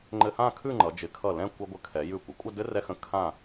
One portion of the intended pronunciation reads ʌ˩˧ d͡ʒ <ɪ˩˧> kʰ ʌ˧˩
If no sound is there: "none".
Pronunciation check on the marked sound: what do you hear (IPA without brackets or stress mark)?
ɪ˩˧